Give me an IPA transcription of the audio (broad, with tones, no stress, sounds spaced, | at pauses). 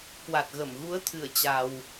k w a˨˩ t̚ ɣ ə˧˩ m ɣ u˨˦ ə̯ t̪ʰ ɨ˧˩ ə̯ t͡ɕ a˧ w